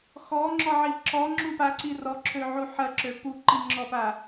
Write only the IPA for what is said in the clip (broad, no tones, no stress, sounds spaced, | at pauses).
x ɔ ŋ͡ǁ ɔ ʕ i ǁ ɔ ŋ͡ǁ u p a ǀ i r ɔ ǁʰ ø ʕ u ħ ɐ ǁ ø p u ǃ i ŋ͡ǁ ɔ p a